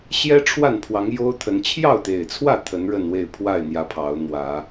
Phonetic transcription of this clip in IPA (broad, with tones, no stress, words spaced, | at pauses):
ɕjɛ˦ ʈ͡ʂʰwa˥˨npʰwɑ˨˦ŋ jo˦ʊ̯t̪ʰə˨˦n t͡ɕʰjɑ˥˨ʊ̯t̪e˨˩ɪ̯t͡sʰwä˥˨ t̪ʰə˨˦nɻə˥˨nwe˥˨ɪ̯ pʰwa˥˨ɪ̯n̪jä˨˦ pʰɑ˨˦ʊ̯n̪wä˨˦